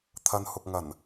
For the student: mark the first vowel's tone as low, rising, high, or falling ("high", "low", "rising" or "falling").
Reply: low